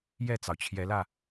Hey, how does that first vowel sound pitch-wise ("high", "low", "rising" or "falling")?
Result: falling